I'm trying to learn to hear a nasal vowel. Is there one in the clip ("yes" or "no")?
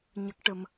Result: no